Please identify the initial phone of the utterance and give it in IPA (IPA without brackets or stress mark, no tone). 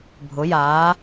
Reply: bʱ